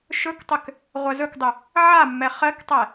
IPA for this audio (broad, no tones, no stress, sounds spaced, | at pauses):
ʃ ɵ k tˤ ʏ k | ʁʷ ɛ z ɵ k dˤ ʏ | ʕ a mː ɛ χ ɜ k tˤ ɛ